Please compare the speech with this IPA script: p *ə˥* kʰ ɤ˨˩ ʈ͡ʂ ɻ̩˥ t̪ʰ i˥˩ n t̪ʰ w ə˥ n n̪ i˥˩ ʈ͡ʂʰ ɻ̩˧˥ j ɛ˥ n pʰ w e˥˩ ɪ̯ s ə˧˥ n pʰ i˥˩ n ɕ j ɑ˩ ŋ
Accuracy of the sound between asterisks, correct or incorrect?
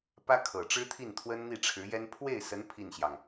incorrect